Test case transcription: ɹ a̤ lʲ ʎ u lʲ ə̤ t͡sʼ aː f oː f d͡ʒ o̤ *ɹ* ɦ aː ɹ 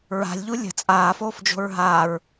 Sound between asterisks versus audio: correct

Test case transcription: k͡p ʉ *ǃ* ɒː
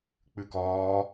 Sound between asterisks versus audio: incorrect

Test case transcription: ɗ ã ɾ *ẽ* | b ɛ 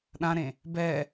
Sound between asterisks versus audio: correct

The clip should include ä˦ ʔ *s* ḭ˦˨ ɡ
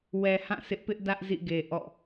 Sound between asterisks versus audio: incorrect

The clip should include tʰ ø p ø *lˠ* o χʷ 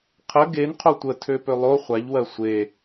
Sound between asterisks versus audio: correct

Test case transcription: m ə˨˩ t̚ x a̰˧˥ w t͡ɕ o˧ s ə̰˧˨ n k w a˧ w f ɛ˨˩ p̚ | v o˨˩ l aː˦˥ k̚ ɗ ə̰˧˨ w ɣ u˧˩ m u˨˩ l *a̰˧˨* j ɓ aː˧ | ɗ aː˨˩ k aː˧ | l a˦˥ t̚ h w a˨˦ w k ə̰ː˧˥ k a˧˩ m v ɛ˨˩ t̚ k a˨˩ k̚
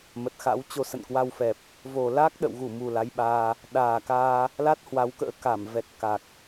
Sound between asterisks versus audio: incorrect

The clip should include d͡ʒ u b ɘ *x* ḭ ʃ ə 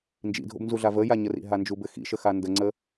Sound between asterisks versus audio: correct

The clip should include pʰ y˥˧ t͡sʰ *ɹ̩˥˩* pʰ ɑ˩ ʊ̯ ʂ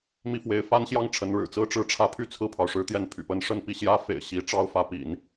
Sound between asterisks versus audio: correct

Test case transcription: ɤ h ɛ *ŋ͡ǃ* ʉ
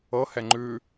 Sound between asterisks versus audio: correct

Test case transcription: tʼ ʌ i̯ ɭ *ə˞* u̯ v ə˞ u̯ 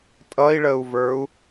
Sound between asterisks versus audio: incorrect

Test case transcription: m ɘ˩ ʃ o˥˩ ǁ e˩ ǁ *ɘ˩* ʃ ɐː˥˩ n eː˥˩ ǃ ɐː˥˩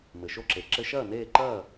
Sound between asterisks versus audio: incorrect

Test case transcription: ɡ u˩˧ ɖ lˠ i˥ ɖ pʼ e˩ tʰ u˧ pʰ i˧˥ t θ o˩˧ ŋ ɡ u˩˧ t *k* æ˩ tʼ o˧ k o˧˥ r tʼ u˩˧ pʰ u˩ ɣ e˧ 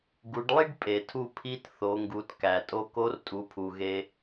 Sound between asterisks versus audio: correct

